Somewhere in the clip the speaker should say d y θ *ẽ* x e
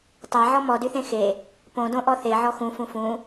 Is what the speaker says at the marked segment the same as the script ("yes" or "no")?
yes